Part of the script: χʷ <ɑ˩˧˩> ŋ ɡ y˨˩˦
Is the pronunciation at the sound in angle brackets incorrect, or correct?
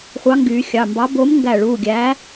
incorrect